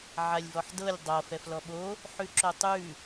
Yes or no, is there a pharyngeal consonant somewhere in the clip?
yes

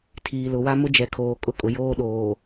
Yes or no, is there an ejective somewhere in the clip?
yes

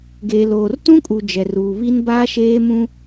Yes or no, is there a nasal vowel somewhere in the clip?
yes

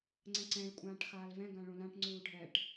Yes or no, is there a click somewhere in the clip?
yes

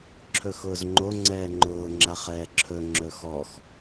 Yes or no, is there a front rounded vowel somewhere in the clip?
no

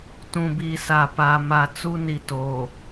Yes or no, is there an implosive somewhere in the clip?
no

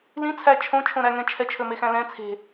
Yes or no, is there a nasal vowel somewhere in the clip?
yes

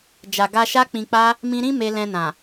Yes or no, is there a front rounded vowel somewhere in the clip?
no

